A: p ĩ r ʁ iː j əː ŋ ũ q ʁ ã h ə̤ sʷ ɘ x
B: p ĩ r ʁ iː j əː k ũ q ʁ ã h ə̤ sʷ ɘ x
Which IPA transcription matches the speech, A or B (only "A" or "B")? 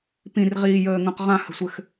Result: A